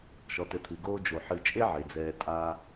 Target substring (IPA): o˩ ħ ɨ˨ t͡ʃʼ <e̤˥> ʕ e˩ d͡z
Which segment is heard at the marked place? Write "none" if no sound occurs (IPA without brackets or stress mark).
e˥